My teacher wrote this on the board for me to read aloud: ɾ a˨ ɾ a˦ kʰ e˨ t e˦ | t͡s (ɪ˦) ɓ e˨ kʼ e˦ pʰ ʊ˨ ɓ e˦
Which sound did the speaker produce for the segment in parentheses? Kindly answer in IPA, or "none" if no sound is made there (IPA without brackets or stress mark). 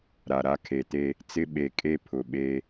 ɪ˦